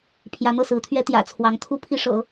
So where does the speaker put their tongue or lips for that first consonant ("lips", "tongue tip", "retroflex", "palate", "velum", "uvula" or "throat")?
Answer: lips